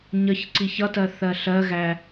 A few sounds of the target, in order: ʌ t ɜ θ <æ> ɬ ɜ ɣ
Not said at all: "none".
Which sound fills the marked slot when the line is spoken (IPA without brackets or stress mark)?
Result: ɜ